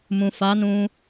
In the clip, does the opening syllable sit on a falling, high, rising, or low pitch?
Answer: low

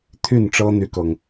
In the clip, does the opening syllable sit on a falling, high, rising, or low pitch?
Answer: falling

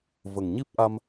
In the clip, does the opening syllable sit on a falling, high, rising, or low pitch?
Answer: low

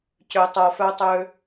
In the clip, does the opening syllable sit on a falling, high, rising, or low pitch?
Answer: low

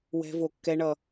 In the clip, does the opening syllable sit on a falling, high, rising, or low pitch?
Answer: high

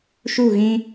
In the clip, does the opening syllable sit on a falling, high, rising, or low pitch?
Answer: falling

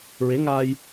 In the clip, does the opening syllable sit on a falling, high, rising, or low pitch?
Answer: rising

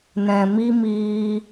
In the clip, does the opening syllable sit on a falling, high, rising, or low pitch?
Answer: low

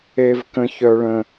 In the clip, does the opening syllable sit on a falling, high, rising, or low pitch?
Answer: high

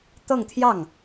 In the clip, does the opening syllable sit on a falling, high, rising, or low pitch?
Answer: falling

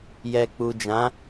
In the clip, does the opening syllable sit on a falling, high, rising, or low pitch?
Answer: low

